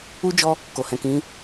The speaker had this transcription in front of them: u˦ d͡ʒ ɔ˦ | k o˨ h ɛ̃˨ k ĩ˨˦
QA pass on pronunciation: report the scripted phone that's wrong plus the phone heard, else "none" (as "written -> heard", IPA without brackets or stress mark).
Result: none